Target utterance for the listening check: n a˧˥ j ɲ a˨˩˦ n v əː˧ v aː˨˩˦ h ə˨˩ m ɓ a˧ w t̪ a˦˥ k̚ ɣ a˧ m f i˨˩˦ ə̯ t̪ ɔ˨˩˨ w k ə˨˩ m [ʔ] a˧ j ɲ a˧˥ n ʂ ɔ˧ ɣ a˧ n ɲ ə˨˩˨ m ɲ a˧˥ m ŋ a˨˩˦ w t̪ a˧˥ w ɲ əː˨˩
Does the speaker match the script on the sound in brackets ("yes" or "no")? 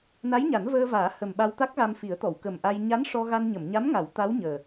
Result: yes